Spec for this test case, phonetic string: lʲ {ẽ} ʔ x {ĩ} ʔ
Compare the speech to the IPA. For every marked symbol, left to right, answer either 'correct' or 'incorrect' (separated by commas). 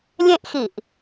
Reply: correct, incorrect